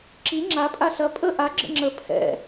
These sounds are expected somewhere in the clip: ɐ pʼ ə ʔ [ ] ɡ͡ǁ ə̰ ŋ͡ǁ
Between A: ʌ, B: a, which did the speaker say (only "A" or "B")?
B